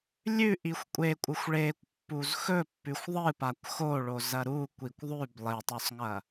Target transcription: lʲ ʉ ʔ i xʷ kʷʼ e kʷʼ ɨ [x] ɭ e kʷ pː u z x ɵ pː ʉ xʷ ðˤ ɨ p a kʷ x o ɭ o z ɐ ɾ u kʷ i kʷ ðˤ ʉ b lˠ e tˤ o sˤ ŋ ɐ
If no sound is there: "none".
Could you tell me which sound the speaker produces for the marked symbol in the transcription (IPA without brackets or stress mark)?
xʷ